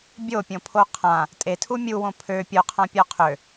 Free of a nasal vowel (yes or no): no